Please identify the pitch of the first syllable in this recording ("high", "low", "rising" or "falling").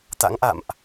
rising